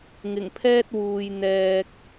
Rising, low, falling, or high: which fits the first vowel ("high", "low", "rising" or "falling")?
low